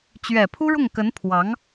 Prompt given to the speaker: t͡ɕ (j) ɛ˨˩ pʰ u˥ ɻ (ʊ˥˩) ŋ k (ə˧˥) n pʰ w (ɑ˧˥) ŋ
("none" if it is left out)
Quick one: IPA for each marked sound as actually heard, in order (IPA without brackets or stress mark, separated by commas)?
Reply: ɥ, ʊ˥˩, ə˧˥, ɑ˧˥